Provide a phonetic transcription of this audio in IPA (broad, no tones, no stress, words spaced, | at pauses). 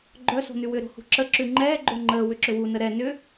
ɡ͡ǃœ so̤nʉwʏ ɾo̤hṳǁə ǁʉŋ͡ǃɛː ɡ͡ǃoŋ͡ǃəː wʏǁʏwu nəɾɛ nʏ